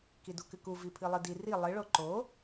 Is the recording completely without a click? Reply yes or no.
no